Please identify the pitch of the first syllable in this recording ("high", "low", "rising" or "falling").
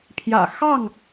low